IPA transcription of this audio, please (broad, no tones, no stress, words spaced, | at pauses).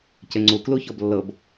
ceŋ͡ǀu kluçɔblːɤb